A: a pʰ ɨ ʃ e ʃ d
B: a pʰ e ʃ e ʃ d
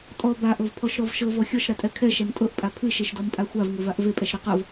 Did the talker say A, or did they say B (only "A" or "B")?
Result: A